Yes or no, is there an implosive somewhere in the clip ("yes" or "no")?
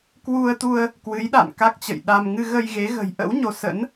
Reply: yes